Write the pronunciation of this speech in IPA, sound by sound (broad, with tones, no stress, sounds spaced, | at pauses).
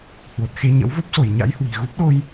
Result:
h w o˨˩ t̚ x e˧ ɲ ə̰˧˥ w v o˦˥ p̚ s o˧˩ j ɲ a̰˧˥ j h w i̤˨˩ ɣ u˦˥ p̚ ɗ o˧ j